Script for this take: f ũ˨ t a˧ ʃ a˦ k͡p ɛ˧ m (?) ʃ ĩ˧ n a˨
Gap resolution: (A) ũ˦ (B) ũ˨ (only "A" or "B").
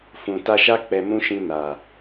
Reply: A